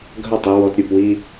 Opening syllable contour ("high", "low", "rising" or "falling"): falling